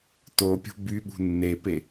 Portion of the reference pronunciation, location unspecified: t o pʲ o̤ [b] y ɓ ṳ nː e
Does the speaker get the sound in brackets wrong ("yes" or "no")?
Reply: no